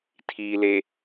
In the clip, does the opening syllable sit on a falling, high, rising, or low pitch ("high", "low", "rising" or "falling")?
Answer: low